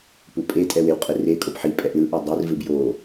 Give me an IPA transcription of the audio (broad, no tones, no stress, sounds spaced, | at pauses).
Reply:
p u pʼ e tʼ ɛ w e w qʼ ɯ r e kʼ o p ħ i pʼ ɛ ʔ l ɯ ʔ ʌ dˤ i r v ɯ b j o